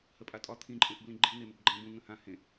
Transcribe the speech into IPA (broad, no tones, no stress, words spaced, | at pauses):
həpʼatʼɒ t̪ʰĩ ǃʼẽʔblĩɡ͡ǃi neməbɡ͡ǃæ̃b ũ ŋə̃hã hẽ